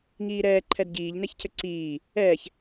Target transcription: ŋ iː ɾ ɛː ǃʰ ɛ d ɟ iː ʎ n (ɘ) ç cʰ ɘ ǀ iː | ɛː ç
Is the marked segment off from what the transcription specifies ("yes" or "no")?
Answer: yes